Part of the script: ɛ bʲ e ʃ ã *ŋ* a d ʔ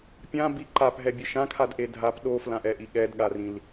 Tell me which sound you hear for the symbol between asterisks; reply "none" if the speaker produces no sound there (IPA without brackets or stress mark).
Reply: kʰ